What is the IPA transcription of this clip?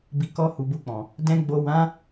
b i˨ k ɔ˧ h u˨ b u˧ k͡p ɔ̃˨ | d ɛ̃˨ ɡ͡b o˨ w ã˨˦

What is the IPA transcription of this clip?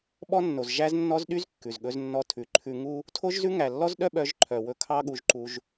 ɓ ɔ˥ nː o˩ z ʒ æ˥ z nː ɔ˥ z ɗ y˥ z kː ʉ˩ z ɠ ɵ˧ z nː ɔ˧ tʰ ʉ˩ ǃʰ ʉ˧ ŋ u˥ | tʰ o˥ ʒ z ʉ˥ ŋ æ˩ lː ɔ˥ z ɗ œ˥ ɓ œ˧ ʒ ǃʰ œ˩ w ɵ˧ kʰ ɑ˥ ɠ u˧ ʒ ǃ u˧ ʒ

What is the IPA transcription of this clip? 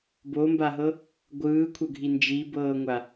b o m b a ɦ ɤ | ɡʷ ɯː kʷʰ ɤ ɡʱ i n d͡ʒ i b ɤː ŋʷ a

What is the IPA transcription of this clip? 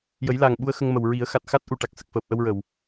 j ə˨˩˦ j l a˨˩ ŋ ɓ u˧ ə̯ x ə˧ ŋ m ə˨˩ w ɹ i˨˩˦ ə̯ x a˨˩ t̚ x a˦˥ t̚ ʔ u˨˩ ʈ a˨˩ k̚ s ə˨˩ k̚ f əː˨˩ p̚ ʔ ə˧ w ɹ ə˨˩˨ w

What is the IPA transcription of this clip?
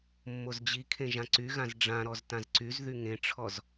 mː o z d͡ʑ i kʰ ẽ ʒ ã ǀ y ɣ ã z ɖ͡ʐ ã ɾ ɔ z t ã z ǀ y z ð y ŋ ẽ ʈ͡ʂʰ ɔ z

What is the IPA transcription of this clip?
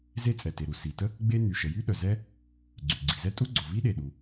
z e˥ t͡sʼ ɛ˩ t e˩ ɾ u˩ s i˩ t ə˥ | ɡ͡b e˥ n y˩ ʃ ə˩ j y˥ ɗ œ˩ z ɛ˥ | ɡ͡ǀ y˩ ɡ͡ǀ i˩ z ɛ˥ tʼ u˥ ɡ͡ǀ o˩ v i˥ ɗ e˩ ɗ u˩

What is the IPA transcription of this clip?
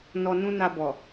n ɔ˧ n ũ˦ n a˧ b ɔ˨

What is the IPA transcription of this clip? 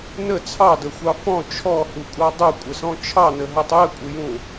n ə t͡sʰ ɑ d ə xʷ ɑ f ɔ̃ t͡ʃʰ ɔ h u kʷʼ ɑ dˤ u kʷʼ ə s ɔ̃ t͡ʃʰ ɑ n ə ɦ ɤ tˤ j ə kʷʼ ɘ j ũ

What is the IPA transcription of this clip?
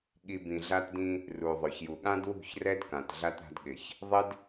ɠ i˨ b ĩ˨ ɮ a˦ t d ĩ˦ | r u˨ ðˤ ʊ˨ ç j u˨ ɠ ã˦ d w ṳ˦˨ ç r ɛ˦ d k ã˨ t ɮ a˦ t ɾ a̤˦ d ɠ ɪ˨ ç | ðˤ ɪ˦ d

